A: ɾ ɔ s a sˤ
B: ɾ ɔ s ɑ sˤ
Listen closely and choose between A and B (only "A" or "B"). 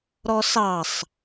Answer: B